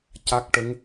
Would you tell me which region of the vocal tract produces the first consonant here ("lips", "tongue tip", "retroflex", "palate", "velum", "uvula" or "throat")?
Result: palate